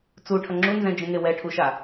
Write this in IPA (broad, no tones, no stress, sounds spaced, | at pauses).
t͡s u ʈʰ ʌ ŋ͡ǁ u n z ɛ̃ d͡ʒ ẽ ŋ e w ɛ ʈʰ u ʃ a